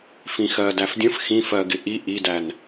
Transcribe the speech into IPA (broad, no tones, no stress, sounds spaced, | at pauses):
f ĩ x ɜ d æ f dʲ ə̃ f x ĩ f ɜ ɡ ɪ ʔ i ʔ i d æ n